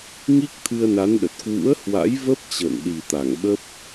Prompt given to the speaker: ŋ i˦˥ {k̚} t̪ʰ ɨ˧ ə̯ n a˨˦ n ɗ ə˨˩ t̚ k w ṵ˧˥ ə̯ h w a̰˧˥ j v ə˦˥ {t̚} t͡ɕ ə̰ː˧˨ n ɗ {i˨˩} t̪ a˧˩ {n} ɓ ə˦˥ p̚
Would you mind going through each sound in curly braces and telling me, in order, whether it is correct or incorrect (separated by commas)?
correct, incorrect, correct, incorrect